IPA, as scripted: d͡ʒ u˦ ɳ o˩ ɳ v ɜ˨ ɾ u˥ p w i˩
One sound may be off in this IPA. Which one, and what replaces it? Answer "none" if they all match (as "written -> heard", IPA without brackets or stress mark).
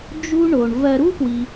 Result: none